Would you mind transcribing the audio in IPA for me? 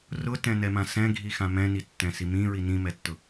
r ʊ t ɛ̃ n ɛ m ã s ɛ̃ ɡʱ i x ã m ɛ̃ n i tː ɛ̃ s i m ĩ ɹ i n ĩ m ɛ tː ʊ

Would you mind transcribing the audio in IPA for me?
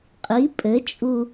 qʼ i pʼ ɘ t͡ʃʼ u

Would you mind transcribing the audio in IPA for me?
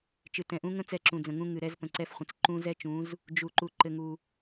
t͡ʃ ɨ˨ t ɛ̃˨ ʔ ũ˦ ŋ ə̃˦ t͡s ɛ˦˨ ǁ ũ˨ d͡z ə̃˨ ŋ ũ˦ ŋ ɨ˨ ɾ ɛ˦ z p ə̃˨ ǀ ɛ˦ f χʷ ə̃˨ t͡s ǃ ũ˦ z ɛ˦ t͡ʃ ũ˨˦ z | d͡ʒ u˨ ǃ u˨ ǃ ɘ˦ ŋ u˦

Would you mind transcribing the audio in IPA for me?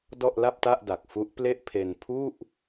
d ɔ˥˩ ʔ l a˥˩ p̚ t a˥˩ ʔ d a˨˩ k̚ f u˦˥ ʔ p l e˥˩ ʔ pʰ e˧ n pʰ u˥˩ ʔ

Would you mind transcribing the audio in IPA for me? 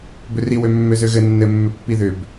b ʏ r i w ø mː ø z ø ɣ ɘ nː ɘ mː ʏ pː i ð ʏ b

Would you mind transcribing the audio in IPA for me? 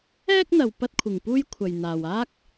ɛː˥ k̚ n̪ ɐ˨ w p ɐ˥ t̚ kʷʰ ɪ˨ ŋ p uː˥ j kʷʰ ɐ˨ j n̪ aː˨ w aː˥ k̚

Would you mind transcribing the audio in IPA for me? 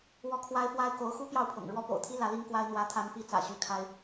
w ɔ˥˩ kʰ w a˥ ɪ̯ f w a˥ ɪ̯ k o˧˥ ʊ̯ x u˥ p j ɑ˥˩ ʊ̯ pʰ ɤ̰˨˩ ŋ ɻ w ɔ˥ p o̰˨˩ ʊ̯ t̪ʰ i˥ l ä˧˥ l i˥ ŋ k w a˥ ɪ̯ n̪ w ä˧˥ t̪ʰ a˧˥ n p i˧˥ t͡s ä̰˨˩ ɕ y˥˩ kʰ a˥ ɪ̯

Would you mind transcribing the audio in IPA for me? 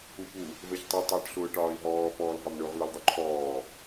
u p u | v ɛ ç tˤ u tˤ ʊː ʈ ɬ ʊː ʈ ɒː i̯ ɦ ɔː p ɔː l ɦ ɒ m ɳ ʊ ʁ l ʊ l dˤ u ǃʰ ɔː

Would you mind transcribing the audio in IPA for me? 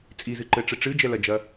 t͡sʼ i z ɨ ǃ ɘ ʈ͡ʂ ɘ ʈ͡ʂ ɨ d͡ʒ ɛ l ɐ d͡ʒ ɐ

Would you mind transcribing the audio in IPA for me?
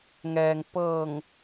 ŋ ɛː˩ ŋ p ɤː˧˩ ŋ

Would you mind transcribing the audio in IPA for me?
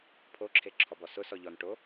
pʰ o ǁʰ e ǁʰ ɔ b ɔ s ʊ s ɔ ʎ ɔ n ʈ o

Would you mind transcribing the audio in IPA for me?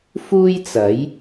f uː˥ j t͡s ɐ˨˥ j

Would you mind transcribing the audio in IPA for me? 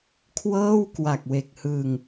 kʰ w ɤː˥˩ w k w a˨˩ k̚ w e˨˩ k̚ h ɯː˧ ŋ

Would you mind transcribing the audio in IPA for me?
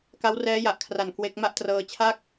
k a˦˥ w r ɛː˦˥ j a˨˩ ʔ kʰ r a˨˩ n k w e˦˥ k̚ m a˥˩ ʔ t r ɤː˧ t͡ɕʰ a˥˩ k̚

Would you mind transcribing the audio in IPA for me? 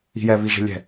i̤ j ɛ β i ʒ e̤ lʲ ɛ̤

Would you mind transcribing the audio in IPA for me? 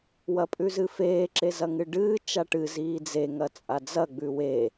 w ɐ pʼ ʉ z ɨ f eː ǁ e z ɐ ŋ ɨ ɖ ɨː t͡ʃ a ʈ ɨ z iː d͡z e ŋ ɐ t͡sʼ a d͡z ɐ ɡ͡b ʉ w eː

